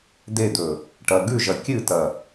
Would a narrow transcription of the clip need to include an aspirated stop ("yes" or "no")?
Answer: no